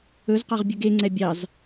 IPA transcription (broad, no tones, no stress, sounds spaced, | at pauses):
ɵ z q ɑ ʁ bʲ ɵ ɡ e ŋ͡ǀ ɛ bʲ ɑ z